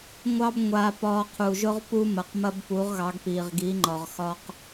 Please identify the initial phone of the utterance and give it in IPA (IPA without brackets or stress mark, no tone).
ŋʷ